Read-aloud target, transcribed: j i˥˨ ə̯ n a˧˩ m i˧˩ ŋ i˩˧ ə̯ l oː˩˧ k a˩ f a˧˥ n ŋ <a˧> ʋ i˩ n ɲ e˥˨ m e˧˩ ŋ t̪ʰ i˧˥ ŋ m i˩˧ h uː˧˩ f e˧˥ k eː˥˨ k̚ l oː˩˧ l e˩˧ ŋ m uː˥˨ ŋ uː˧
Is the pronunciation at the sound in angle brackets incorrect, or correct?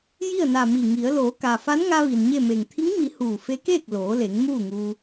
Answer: correct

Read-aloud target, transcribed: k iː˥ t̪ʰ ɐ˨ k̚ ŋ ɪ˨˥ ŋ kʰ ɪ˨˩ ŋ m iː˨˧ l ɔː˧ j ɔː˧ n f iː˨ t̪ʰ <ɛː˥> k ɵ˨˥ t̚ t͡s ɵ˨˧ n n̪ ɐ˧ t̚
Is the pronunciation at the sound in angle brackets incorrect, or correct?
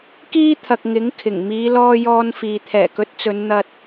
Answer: incorrect: ɛː˨˩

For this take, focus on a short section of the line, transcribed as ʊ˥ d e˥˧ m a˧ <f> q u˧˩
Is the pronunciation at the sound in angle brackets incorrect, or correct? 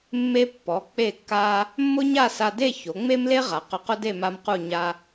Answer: incorrect: m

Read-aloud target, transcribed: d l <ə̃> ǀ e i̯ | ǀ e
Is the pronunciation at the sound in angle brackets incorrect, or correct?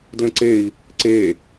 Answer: correct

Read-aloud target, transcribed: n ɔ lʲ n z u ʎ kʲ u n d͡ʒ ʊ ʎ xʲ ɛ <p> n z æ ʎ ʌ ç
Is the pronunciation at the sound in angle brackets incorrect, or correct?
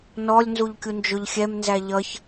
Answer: incorrect: m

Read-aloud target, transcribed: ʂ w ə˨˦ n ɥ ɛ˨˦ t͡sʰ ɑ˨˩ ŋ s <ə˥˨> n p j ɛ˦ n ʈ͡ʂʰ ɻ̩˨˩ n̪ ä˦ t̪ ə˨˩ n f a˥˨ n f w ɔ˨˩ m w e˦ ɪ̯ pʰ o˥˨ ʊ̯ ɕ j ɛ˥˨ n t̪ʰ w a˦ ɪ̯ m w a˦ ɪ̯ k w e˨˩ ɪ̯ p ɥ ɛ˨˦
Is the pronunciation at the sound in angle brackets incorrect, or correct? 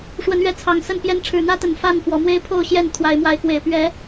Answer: correct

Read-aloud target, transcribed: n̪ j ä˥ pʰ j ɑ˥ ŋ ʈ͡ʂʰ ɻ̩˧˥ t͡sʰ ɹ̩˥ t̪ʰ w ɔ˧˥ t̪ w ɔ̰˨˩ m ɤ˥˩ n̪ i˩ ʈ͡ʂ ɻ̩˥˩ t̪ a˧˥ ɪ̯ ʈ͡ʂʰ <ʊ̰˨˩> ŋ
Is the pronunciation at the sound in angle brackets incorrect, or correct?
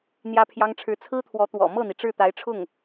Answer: incorrect: ʊ˥˩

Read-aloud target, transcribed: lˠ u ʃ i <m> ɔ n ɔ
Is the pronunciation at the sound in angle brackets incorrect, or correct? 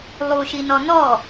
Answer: incorrect: n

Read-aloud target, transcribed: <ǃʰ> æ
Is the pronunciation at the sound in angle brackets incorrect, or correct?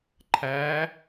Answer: correct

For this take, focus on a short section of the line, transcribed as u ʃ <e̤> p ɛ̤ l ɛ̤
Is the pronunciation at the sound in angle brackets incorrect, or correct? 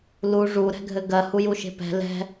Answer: correct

